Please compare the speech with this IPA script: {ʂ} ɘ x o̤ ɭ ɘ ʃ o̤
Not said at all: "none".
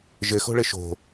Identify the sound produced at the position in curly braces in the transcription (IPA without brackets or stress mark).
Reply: ʒ